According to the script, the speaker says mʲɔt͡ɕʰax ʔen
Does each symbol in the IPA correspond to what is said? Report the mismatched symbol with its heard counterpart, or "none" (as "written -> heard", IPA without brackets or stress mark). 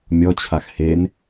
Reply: ʔ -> h